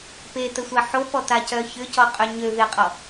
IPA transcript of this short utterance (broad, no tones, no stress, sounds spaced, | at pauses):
p e t ə sʷ a ħ o p ɔ t a c œ ç ʏ c ɔ qʼ ø ɲ ø v e qʼ ɔ